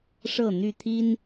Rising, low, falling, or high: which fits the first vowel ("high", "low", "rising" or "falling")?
falling